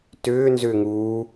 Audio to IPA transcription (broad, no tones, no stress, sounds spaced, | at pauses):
t ʏː n z ʏː ŋ uː